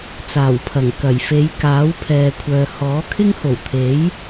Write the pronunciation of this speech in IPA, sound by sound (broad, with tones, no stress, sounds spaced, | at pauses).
t͡s aː˨˩ w pʰ ɐ˨˩ ŋ k ɐ˨˩ j f e˨˧ j k aː˨˥ w pʰ ɛː˨ kʷʰ œː˨ h ɔː˨˥ kʰ ɪ˥ ŋ h o˨˩ w t̪ʰ e˨˥ j